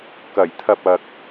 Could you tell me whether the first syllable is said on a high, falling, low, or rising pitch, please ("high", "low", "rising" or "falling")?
low